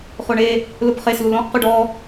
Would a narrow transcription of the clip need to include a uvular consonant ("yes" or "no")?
yes